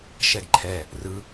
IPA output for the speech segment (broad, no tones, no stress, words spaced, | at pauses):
ʃɛɡǃʰɛ | rɯ